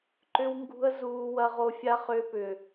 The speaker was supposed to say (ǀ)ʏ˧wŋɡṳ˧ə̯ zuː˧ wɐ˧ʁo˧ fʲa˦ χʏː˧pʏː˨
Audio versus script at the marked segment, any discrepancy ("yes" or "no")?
yes